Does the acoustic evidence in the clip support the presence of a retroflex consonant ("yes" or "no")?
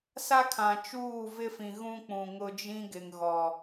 no